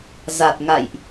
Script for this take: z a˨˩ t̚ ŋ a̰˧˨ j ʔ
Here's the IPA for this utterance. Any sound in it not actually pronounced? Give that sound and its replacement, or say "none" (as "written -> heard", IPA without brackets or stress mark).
none